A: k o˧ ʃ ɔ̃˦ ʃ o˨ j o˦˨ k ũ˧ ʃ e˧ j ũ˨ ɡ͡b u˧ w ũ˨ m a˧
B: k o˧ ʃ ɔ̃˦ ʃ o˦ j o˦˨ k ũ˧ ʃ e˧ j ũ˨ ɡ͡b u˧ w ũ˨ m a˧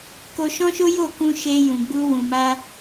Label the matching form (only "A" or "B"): B